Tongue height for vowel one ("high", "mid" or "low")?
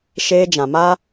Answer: mid